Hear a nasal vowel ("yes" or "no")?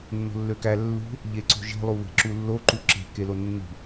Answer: no